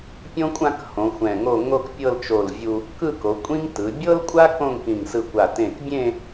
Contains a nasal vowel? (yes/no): yes